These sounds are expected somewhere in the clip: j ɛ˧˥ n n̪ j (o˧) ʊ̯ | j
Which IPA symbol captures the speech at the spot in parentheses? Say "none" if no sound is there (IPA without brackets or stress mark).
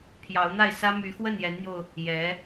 o˧